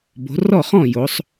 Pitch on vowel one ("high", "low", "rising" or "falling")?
rising